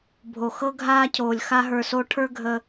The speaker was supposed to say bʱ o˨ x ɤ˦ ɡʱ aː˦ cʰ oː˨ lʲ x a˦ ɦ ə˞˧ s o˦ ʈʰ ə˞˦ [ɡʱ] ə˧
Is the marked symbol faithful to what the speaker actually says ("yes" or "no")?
yes